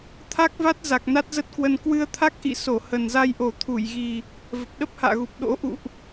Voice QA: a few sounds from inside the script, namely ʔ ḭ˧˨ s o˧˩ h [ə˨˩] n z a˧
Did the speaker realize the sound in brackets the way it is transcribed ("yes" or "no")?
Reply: yes